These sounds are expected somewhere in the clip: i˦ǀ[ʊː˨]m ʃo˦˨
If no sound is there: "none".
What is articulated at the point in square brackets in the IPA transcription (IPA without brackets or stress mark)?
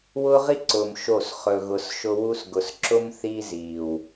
ʊː˨